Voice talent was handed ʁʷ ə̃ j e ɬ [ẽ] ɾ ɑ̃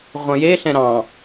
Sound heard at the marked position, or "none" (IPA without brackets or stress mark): ɛ̃